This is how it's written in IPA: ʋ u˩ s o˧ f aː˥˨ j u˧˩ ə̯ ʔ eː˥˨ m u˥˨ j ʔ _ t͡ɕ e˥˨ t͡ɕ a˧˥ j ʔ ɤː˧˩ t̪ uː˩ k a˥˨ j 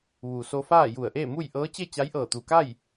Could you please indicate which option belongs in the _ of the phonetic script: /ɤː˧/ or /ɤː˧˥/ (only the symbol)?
ɤː˧˥